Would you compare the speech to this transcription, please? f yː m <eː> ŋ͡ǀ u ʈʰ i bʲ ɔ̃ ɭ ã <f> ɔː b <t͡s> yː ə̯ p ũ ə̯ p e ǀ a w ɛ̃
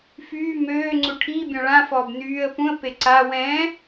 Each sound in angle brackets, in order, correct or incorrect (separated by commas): incorrect, correct, incorrect